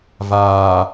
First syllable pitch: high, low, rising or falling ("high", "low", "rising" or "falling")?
low